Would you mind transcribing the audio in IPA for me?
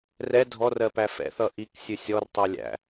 rɛ dʱɔrɜpæ fɛ̰θʌ ʔiksʲɨ sʲɔrtˤɛ lʲæ̰

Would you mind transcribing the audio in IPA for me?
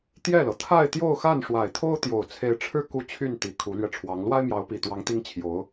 t̪jɛ˥˩lɤ˩ t̪ʰa˥˧ɪ̯t̪jo˥˧ʊ̯ xa˥˩nʂwa˨˩ɪ̯t̪ʰo˥ʊ̯ t̪jo˨˩ʊ̯t͡sʰe˧˥ɪ̯ʈ͡ʂʰɻ̩˥ ku˥˧t͡ɕʰy˥˩nt̪i˨˩ kʰu˧˥lɥɛ˧ʈ͡ʂʰwɑ˧˥ŋ lwa˥ɪ̯mjɑ˧˥ʊ̯pi˨˩t̪wɑ˧˥ŋ t̪i˥ŋt͡ɕʰjo˧˥ʊ̯

